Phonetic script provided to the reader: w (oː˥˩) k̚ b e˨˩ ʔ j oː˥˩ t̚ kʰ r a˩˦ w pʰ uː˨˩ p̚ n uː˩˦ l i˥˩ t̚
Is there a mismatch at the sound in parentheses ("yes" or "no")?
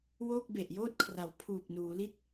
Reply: no